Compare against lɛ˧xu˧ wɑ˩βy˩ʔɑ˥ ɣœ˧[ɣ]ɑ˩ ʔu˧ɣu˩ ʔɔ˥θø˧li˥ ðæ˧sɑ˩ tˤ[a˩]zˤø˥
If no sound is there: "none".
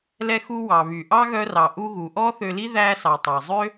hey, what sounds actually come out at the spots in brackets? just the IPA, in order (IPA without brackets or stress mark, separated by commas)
r, ɑ˩